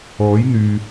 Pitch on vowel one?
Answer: rising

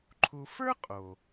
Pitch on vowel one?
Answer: low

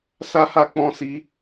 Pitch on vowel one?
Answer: high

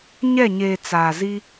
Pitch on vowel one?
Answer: falling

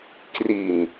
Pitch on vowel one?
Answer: low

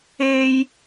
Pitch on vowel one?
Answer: low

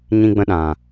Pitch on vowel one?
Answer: high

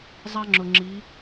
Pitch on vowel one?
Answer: high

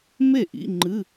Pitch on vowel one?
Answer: falling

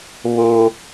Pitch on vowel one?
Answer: high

